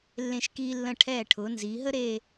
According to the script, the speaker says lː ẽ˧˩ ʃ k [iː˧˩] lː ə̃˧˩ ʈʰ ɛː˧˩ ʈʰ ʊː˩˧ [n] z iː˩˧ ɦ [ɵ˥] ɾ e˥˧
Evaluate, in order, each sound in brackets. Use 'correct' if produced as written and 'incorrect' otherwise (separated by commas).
incorrect, correct, incorrect